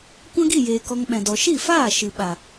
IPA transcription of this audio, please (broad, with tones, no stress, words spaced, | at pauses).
kʷã˦ɡi˦˨jeː˨ kɔ˧ŋɓɛ̃˨ dɔ˨ʃi˦˨faː˦˨ ʃɨ˨ɓa˨